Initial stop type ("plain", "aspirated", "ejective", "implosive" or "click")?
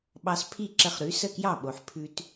implosive